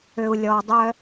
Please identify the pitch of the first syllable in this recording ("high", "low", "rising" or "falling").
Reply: high